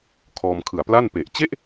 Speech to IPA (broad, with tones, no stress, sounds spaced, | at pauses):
kʰ ɔː˧ m kʰ ɯ˨˩ a̯ p l a˥˩ n p e˨˩ ʔ t͡ɕ e˥˩ ʔ